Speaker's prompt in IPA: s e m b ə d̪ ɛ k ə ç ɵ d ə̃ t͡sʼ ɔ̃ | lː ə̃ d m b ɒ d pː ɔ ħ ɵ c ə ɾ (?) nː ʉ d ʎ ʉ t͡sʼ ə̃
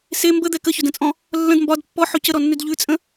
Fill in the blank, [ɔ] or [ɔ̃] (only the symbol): ɔ